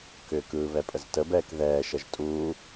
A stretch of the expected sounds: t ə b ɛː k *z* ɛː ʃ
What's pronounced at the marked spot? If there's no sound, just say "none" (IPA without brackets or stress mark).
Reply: ð